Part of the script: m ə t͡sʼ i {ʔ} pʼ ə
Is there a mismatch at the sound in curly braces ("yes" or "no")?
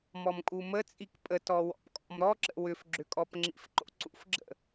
yes